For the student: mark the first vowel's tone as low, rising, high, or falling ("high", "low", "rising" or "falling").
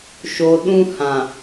low